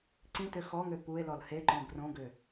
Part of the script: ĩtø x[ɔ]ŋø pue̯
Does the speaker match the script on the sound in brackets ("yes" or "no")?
yes